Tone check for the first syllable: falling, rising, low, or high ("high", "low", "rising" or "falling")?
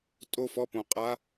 falling